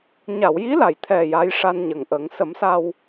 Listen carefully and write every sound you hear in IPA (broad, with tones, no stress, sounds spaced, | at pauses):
ɲ a˨˩˨ w j i˧˥ l a˨˩ j t̪ʰ ɛ˨˩ j a˧˥ j ʂ a˧ n ɲ ə˨˩ ŋ ʔ ə˨˩˦ ŋ s ə˨˩˦ m s a˧ w